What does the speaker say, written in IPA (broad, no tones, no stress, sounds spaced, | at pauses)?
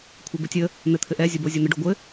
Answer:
kʷʰ ɘ b ɘ tʲ ə | n̪ ɘ t̪ʰ ɘ ʔ ɛ zʲ o b o zʲ o n̪ ə ɖ o ɡʷ ɘ